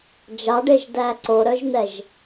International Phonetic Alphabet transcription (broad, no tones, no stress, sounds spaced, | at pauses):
d͡ʒ ɑ ɖ e ʒ d æ ǀ o ɾ œ ʒ n̪ ɛ ʒ